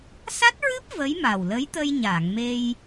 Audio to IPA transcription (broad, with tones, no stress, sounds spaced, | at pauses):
s a˦˥ t̚ ɹ ɨ˦˥ p̚ v ə˧˥ j m a˨˩ w l ə˧˥ j t̪ ə˧ j ɲ a˨˩˨ ŋ m e˧ j